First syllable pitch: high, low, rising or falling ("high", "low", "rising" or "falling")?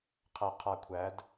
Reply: low